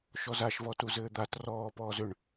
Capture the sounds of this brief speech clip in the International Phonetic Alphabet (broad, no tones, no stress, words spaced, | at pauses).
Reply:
ʃɔzaʃvɔ tuzɘːd̪at rɔːpɔːz ʏɳ